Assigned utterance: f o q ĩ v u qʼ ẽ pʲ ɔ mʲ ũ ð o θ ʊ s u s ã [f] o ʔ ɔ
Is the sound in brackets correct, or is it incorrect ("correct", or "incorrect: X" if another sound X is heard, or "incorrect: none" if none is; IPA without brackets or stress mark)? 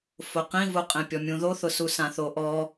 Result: incorrect: θ